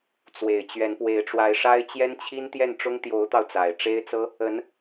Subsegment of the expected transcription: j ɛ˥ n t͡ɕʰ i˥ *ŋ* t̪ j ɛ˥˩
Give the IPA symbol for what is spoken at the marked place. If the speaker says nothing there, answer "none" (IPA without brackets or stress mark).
n